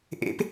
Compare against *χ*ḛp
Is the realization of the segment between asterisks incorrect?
yes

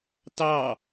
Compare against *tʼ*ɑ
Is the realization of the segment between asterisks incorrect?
yes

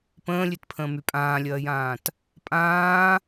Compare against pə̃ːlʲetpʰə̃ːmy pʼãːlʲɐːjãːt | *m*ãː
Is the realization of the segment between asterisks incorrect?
yes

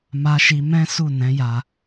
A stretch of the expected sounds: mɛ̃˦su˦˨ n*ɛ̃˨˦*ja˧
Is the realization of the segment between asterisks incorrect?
no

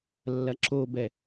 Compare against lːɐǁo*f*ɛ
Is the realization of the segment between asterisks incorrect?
yes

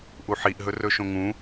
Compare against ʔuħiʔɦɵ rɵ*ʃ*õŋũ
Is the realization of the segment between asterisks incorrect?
no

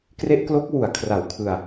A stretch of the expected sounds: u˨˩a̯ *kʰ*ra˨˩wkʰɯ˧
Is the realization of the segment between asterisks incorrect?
no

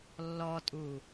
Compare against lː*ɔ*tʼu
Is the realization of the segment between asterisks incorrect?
no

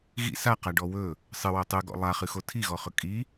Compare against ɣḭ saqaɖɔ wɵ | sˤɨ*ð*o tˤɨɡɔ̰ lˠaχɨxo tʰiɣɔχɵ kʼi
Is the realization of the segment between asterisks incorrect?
yes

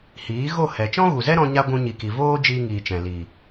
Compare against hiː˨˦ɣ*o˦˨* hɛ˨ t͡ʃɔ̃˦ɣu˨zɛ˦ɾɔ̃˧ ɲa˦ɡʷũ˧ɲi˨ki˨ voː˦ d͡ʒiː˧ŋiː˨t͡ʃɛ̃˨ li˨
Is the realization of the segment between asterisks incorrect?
no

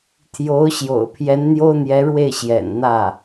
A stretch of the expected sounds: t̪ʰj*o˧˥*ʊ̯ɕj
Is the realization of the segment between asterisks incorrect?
no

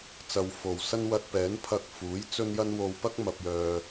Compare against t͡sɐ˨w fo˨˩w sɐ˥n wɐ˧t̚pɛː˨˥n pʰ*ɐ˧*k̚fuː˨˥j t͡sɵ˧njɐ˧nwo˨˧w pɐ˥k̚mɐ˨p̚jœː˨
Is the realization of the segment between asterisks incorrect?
no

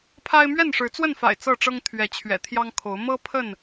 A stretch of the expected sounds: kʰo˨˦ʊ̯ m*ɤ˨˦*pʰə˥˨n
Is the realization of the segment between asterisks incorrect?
yes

